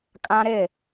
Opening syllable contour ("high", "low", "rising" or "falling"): high